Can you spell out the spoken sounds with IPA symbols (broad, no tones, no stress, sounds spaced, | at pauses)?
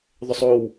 ðˤ ʏ sˤ o w